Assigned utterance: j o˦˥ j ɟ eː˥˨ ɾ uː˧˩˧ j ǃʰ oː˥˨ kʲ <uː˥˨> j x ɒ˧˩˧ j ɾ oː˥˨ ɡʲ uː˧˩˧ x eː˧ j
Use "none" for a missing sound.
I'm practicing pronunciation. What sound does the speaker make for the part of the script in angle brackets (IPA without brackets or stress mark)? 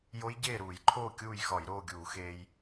uː˥˨